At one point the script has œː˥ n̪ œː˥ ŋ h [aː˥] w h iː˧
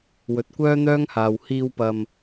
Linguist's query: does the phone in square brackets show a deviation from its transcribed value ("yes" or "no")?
yes